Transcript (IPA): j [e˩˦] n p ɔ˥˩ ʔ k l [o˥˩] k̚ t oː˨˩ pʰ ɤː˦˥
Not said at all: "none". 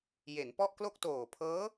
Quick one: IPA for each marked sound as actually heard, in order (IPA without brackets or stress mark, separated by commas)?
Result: e˩˦, o˥˩